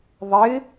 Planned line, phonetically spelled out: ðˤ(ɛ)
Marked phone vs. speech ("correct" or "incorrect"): incorrect